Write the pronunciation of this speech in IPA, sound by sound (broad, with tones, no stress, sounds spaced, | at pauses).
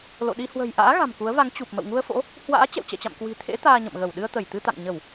l o̰˧˨ ɗ i˧ h w ə̤˨˩ j ʔ a̰ː˧˥ ɣ a̤˨˩ m k u˨˦ ə̯ v a˨˦ ŋ t͡ɕ u˨˩ p̚ m ə̰˧˨ w ŋ u˧ ə̯ f o̰˧˥ | h w a̰ː˧˥ t͡ɕ ɛ̰˧˨ w t͡ɕ ɛ̰˧˨ t͡ɕ a̰˧˨ m k w i̤˨˩ t̪ʰ ḛ˧˥ t̪ aː˧ ɲ ə̰˧˨ m ɣ ə˧˩ w ɗ ɨ˧ ə̯ t̪ ə˧˩ j t̪ ɨ˧ t̪ a̰˧˨ ŋ ɲ ə˧˩˨ w